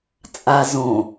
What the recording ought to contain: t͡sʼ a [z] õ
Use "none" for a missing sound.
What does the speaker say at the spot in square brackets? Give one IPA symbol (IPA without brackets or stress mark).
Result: z